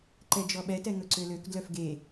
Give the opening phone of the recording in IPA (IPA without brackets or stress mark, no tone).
ǃ